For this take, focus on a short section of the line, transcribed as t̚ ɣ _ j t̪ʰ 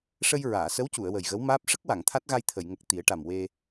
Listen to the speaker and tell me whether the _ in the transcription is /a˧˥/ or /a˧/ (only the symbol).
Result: a˧